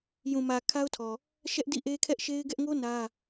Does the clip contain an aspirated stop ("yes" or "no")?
yes